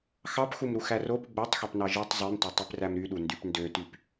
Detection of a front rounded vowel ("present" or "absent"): present